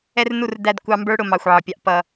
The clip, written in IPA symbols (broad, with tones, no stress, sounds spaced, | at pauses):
ɛ˦ r n u˦˨ r d æ˦˨ d kʷ ɑ˦ m b ə˞˦ ɽ ʊ˨ m ɑ˨ xʷ ʕ ə˨ pʲ ɑ˦ ʔ p ʌ˦